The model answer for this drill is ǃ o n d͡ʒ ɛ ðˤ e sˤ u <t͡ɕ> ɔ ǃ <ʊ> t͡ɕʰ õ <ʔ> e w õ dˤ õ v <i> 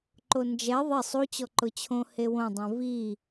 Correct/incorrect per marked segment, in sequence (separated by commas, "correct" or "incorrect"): correct, correct, incorrect, correct